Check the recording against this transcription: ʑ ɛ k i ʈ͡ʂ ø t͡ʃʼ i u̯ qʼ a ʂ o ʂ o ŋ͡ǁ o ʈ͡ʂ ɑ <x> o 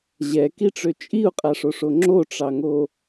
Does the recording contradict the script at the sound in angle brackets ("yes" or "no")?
yes